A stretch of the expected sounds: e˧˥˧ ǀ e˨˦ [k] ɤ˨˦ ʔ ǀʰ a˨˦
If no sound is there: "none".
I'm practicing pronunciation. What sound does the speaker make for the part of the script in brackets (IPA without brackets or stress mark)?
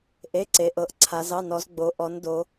ʔ